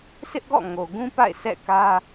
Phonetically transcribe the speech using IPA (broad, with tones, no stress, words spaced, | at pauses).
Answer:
sʰɪ˦ʔɡɔ̰˦˨ ŋo˨ɡũ˦pa̰˦˨ɪ̯ sɛ̰˦˨kä˦